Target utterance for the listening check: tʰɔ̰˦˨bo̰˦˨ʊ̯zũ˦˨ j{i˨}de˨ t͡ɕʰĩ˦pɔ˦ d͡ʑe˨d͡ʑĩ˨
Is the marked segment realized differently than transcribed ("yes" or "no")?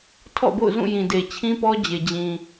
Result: yes